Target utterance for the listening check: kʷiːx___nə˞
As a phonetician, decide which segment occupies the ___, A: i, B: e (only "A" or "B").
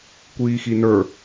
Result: A